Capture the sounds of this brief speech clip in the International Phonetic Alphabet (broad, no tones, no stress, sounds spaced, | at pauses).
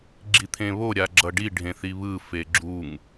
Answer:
ɡ͡ǁ i t̪ʰ ẽ β o ɾʲ a ɡ͡ǁ ʌ ɖ i ɖʱ ẽ θ i β ɯ f e ɡ͡ǁ u ŋ